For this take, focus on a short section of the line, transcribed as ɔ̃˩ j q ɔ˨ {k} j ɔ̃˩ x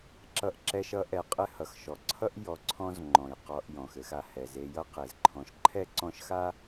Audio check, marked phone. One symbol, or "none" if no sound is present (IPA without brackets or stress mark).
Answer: ʔ